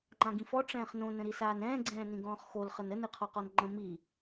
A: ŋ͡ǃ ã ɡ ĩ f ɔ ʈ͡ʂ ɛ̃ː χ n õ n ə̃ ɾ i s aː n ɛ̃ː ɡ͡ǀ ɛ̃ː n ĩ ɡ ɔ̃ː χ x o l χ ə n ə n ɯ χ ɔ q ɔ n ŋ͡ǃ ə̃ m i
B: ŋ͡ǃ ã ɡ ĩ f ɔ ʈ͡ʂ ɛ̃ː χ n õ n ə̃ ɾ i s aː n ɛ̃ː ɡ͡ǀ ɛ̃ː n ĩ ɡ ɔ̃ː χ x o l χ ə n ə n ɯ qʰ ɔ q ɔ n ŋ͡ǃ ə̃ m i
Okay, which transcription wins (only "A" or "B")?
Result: B